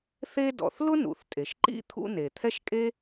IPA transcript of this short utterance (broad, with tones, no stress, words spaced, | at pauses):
θe˥ dɔ̰˩θlʊ˥ nṵ˩θtʼe˩ʃ ǃḭ˥ t̪ʰṵ˥ ne˩t̪ʰɛ˥ʃkʼe˥